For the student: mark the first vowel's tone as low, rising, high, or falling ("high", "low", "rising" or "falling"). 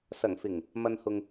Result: low